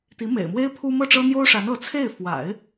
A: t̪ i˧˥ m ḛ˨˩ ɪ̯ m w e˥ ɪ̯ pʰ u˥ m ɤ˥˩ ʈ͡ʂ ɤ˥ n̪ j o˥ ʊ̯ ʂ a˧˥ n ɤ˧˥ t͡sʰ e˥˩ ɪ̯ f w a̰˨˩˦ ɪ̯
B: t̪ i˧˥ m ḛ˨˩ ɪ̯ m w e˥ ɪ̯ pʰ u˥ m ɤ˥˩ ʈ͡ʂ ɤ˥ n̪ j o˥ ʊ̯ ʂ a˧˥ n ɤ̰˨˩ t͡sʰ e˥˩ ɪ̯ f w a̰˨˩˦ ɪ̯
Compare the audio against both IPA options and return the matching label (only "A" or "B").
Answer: A